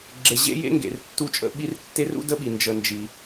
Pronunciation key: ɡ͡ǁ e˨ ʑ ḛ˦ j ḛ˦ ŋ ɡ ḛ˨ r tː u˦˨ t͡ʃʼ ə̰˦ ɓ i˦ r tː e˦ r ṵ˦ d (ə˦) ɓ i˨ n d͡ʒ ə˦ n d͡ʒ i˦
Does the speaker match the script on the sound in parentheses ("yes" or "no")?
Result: yes